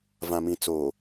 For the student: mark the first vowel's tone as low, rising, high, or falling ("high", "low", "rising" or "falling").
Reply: low